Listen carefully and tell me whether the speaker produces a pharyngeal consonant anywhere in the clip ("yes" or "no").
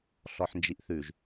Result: yes